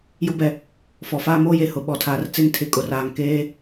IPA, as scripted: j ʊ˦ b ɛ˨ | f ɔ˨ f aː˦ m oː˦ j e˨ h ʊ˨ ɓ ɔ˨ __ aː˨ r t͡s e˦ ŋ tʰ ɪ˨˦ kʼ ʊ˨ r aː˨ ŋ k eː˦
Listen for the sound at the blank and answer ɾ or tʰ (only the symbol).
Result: tʰ